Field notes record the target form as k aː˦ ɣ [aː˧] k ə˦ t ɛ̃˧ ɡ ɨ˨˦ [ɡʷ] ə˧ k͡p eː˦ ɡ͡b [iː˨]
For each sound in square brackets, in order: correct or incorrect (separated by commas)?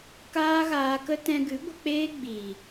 correct, correct, correct